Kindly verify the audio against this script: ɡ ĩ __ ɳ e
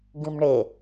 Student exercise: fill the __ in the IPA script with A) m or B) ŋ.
A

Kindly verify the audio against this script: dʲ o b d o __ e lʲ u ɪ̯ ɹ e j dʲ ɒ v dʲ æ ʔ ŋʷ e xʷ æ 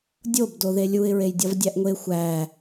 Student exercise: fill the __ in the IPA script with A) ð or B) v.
A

